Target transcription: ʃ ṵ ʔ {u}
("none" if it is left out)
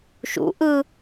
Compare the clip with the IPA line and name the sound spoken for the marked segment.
ɯ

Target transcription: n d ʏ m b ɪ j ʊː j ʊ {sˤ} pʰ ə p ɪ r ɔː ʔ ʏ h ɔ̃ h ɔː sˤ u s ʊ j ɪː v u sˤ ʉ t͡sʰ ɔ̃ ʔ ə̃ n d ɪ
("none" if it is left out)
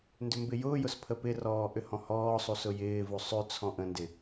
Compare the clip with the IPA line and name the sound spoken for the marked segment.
s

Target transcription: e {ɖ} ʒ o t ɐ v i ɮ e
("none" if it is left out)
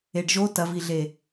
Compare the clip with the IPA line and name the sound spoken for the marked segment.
ɖ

